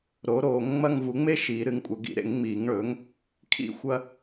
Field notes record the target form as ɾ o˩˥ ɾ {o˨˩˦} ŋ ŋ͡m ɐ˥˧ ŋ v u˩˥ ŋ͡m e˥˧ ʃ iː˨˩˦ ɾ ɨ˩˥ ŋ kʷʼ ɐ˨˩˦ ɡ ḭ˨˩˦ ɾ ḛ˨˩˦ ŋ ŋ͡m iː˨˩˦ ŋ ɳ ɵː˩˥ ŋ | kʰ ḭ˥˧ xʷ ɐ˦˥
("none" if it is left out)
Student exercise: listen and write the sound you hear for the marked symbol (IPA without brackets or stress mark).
oː˨˩˦